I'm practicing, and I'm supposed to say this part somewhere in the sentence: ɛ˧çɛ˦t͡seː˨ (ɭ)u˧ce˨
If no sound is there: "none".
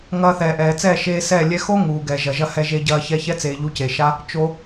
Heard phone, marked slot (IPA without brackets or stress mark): ʎ